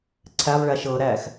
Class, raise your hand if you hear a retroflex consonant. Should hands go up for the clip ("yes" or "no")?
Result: yes